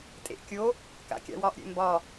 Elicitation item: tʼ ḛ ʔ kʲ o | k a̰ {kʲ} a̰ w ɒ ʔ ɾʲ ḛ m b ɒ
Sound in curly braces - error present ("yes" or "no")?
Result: no